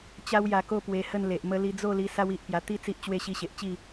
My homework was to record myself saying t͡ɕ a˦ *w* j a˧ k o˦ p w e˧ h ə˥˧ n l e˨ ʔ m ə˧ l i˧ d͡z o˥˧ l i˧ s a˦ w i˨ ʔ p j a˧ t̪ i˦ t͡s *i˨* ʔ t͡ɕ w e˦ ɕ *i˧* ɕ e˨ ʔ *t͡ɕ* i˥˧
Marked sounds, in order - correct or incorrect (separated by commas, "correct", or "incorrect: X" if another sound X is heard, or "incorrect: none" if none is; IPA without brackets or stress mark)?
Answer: correct, incorrect: i˦, correct, correct